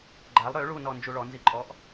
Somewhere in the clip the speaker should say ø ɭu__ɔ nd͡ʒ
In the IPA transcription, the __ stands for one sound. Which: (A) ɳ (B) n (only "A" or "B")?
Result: B